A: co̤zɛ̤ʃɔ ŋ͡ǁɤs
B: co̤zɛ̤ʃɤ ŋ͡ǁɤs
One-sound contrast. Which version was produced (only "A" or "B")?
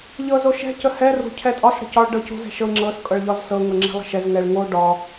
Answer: B